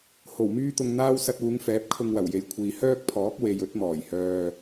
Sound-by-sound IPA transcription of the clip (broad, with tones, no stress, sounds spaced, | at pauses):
h o˨˩ w m yː˥ t̪ ʊ˧ ŋ n̪ aː˥ w s ɐ˧ t̚ uː˨˧ ŋ f ɛː˨˥ p̚ kʰ ʊ˧ ŋ w ɐ˨˩ w j e˨ j kʷʰ iː˨ h œː˥ k̚ pʰ ɔː˨˥ k̚ w e˨ j ɵ˨˥ t̚ m ɔː˨˩ j h œː˧